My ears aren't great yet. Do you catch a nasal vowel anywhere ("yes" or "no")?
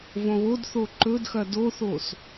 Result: yes